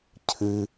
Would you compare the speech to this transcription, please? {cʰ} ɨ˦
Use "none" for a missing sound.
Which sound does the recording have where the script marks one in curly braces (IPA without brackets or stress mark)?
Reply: cʰ